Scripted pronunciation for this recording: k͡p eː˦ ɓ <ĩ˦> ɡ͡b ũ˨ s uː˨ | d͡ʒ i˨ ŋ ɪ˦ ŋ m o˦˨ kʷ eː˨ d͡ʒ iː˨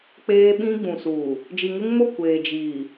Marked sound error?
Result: no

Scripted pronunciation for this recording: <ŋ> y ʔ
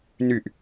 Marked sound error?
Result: yes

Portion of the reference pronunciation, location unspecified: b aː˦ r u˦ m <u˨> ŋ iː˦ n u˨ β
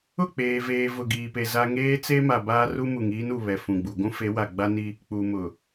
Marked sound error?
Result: no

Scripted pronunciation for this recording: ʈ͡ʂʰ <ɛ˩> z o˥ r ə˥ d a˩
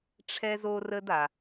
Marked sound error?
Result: yes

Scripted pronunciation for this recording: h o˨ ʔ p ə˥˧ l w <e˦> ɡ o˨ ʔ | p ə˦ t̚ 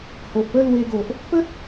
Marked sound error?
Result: yes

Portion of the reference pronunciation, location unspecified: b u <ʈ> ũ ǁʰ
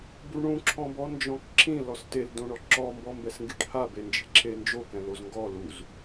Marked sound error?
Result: yes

